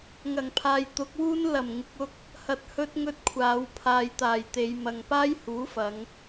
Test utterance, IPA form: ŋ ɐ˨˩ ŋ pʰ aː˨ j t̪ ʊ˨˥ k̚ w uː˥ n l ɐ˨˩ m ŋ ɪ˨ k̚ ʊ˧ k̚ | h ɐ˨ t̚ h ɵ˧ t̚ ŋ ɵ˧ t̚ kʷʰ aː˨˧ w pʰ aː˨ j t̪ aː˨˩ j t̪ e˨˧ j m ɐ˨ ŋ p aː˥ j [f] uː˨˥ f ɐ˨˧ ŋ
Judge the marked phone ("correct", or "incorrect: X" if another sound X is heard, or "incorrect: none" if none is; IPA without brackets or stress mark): incorrect: h